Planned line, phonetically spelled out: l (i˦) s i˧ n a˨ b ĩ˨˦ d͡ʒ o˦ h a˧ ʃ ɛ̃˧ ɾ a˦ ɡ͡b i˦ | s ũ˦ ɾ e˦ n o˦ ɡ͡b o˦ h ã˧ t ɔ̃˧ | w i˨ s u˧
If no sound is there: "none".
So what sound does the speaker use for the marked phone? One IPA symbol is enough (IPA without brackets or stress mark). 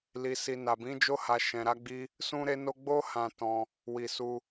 i˧